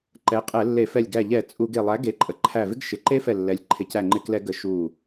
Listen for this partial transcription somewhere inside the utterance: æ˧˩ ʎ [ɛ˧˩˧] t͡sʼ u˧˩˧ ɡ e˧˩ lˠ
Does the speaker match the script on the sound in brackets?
yes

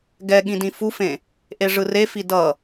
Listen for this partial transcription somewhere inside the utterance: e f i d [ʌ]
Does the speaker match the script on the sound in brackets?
yes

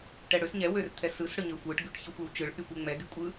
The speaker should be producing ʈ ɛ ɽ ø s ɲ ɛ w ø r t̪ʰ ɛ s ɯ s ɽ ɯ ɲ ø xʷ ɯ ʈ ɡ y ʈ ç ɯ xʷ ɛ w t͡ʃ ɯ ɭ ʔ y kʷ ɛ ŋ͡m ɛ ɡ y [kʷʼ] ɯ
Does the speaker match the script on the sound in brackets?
yes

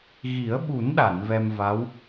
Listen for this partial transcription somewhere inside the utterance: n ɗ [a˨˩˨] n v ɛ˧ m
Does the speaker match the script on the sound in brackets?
yes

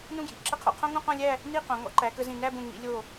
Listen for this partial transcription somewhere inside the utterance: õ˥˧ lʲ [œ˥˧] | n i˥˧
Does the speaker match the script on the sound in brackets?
no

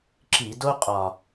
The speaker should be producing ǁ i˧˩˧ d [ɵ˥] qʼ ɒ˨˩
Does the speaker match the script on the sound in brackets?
no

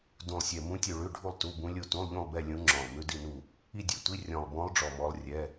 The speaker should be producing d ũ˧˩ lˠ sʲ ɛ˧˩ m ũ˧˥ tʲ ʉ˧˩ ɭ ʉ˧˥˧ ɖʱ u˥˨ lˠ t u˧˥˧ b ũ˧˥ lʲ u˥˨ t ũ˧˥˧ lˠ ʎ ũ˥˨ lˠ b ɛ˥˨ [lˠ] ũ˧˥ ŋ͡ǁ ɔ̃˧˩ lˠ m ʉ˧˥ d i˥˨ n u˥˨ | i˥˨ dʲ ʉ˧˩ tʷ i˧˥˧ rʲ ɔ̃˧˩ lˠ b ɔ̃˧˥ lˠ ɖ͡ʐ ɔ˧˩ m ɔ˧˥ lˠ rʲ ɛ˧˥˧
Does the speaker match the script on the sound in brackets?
no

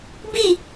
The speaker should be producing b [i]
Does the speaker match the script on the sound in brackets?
yes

